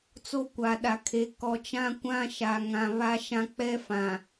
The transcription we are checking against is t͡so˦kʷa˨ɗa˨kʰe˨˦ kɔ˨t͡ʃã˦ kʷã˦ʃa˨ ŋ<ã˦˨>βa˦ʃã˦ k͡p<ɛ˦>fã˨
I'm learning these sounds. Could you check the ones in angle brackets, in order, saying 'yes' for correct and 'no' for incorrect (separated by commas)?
no, yes